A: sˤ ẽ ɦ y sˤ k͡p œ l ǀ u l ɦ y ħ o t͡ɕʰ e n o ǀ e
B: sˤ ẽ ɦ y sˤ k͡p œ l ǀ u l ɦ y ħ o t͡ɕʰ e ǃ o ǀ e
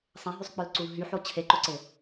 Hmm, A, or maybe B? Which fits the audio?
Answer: B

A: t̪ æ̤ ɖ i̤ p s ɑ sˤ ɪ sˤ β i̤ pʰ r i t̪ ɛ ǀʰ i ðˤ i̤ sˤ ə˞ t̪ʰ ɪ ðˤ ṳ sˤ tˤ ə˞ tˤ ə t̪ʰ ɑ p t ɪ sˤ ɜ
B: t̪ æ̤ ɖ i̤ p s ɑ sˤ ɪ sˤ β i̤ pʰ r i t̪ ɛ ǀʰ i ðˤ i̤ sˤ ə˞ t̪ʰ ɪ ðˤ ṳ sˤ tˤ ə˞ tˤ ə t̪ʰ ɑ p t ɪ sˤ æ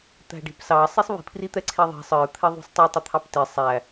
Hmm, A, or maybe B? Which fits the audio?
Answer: B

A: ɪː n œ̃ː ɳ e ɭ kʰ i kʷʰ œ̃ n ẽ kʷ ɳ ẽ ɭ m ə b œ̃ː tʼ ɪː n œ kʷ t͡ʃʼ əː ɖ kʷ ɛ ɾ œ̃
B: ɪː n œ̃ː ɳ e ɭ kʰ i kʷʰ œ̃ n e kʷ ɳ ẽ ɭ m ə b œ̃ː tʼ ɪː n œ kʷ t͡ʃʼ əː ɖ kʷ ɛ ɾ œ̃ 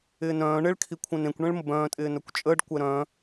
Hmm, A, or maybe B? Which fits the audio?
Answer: A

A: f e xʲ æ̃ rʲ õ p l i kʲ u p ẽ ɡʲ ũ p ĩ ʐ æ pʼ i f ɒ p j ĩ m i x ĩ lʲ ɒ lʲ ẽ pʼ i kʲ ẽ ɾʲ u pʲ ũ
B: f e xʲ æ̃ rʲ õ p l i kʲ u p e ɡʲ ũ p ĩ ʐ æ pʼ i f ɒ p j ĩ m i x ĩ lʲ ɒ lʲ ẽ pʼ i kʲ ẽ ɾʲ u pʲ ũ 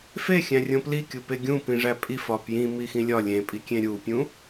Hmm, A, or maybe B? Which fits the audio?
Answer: B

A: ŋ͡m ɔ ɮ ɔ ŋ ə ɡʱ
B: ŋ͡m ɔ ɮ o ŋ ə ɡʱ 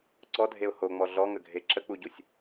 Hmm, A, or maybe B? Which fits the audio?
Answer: A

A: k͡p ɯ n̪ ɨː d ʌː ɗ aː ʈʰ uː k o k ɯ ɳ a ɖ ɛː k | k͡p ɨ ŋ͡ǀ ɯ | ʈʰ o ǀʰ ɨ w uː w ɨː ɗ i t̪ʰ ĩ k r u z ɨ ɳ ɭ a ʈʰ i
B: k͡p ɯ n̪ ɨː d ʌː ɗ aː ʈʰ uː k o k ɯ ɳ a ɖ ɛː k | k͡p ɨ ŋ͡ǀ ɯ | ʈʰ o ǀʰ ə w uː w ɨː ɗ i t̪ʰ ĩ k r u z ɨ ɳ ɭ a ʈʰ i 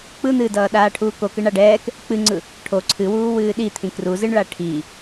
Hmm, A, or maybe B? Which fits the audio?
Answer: A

